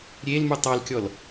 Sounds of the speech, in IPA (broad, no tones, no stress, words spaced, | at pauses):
ɾʲelmu tˤɑlkʲɔl